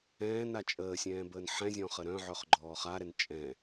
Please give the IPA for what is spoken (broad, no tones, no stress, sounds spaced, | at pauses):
ɛ̃ː n a t͡ʃʼ əː sʲ ɛ̃ː b əː n ħ ɛ̃ zʲ ɔ̃ː χ ə ɾ œ̃ ʕ œ χ ɡ͡ǃ ɔː χ a ɾ ɛ n t͡ʃʼ ɛ̃